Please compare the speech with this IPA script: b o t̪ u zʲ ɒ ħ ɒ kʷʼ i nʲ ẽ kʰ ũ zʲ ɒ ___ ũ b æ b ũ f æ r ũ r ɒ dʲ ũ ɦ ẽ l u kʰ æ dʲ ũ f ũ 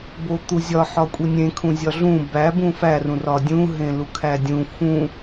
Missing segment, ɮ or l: ɮ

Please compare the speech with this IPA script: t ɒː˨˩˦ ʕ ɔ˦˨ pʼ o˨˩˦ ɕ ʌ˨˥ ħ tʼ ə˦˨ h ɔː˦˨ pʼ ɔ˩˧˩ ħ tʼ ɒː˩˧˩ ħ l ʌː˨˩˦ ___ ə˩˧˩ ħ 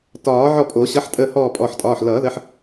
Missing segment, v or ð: ð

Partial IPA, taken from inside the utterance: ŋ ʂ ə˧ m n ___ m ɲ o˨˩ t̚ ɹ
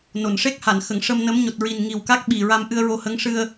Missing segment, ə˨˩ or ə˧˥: ə˧˥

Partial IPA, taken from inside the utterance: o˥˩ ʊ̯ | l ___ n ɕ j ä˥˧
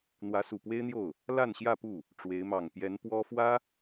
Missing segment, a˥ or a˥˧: a˥˧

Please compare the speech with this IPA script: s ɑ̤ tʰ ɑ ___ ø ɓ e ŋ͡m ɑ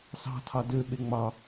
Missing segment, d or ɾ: d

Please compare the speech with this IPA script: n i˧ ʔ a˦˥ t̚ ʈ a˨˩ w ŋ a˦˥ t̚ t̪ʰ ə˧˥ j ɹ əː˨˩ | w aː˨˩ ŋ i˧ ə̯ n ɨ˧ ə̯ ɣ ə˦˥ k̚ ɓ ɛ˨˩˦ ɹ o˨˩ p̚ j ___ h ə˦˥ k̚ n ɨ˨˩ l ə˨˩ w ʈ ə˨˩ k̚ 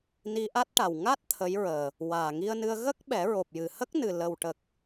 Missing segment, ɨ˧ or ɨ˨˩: ɨ˨˩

